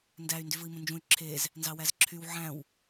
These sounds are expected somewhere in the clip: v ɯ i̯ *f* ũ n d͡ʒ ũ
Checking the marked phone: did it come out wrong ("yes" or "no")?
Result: yes